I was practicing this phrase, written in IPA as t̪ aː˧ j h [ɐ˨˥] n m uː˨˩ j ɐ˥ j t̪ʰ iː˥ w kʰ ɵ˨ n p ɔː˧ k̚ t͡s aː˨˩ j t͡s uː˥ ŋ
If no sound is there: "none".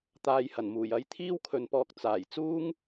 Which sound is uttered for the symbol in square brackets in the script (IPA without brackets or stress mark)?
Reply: ɐ˨˩